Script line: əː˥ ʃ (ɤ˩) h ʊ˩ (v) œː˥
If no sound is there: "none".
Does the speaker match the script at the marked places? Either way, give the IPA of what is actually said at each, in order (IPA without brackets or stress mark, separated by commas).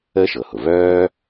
ɤ˩, v